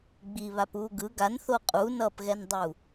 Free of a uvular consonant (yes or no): no